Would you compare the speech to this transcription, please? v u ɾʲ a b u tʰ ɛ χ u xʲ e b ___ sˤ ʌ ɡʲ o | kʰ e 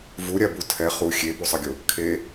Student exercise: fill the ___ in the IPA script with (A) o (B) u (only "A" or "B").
B